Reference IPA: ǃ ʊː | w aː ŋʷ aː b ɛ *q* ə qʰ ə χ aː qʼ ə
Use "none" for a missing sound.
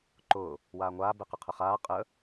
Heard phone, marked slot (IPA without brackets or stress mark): q